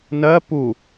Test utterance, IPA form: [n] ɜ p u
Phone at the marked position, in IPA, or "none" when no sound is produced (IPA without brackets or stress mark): n